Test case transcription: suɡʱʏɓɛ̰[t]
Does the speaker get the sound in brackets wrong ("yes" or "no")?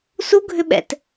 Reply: no